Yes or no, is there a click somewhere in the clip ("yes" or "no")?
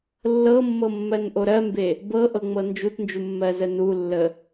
no